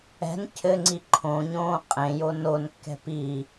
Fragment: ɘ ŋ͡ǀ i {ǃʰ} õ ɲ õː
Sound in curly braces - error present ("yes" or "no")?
no